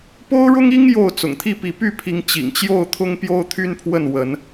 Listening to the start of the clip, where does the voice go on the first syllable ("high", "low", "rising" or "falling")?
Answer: high